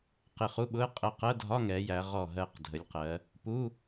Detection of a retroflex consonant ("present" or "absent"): absent